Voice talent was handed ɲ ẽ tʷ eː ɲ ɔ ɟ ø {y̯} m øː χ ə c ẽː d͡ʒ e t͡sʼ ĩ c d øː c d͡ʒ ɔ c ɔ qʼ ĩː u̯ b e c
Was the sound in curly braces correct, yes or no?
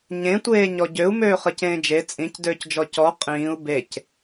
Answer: no